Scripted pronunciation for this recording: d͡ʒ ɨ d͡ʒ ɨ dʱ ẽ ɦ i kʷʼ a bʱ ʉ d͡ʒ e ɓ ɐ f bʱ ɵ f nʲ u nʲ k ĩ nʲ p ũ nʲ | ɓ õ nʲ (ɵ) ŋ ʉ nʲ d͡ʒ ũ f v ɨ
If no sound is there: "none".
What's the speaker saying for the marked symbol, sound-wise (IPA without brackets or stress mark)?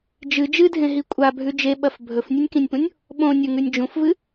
ɵ